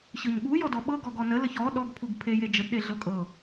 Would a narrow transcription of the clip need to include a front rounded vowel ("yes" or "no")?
no